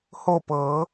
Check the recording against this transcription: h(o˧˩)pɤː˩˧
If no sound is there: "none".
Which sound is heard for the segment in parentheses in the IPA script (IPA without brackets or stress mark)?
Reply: o˧˩